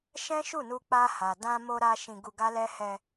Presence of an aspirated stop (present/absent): absent